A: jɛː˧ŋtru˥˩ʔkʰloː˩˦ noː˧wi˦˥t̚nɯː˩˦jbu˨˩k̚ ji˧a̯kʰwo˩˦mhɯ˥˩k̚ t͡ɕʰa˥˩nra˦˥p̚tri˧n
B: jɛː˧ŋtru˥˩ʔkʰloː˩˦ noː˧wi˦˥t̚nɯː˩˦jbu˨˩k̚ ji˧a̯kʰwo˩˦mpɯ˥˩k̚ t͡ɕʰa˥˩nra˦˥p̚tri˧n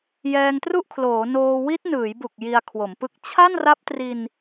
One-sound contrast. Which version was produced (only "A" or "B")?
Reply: B